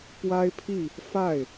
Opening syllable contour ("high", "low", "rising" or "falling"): high